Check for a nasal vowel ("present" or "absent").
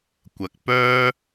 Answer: absent